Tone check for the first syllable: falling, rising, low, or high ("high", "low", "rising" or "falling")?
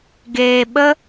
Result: low